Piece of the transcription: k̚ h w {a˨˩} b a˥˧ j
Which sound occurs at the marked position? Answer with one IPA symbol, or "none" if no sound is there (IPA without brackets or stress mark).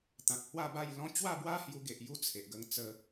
a˥˧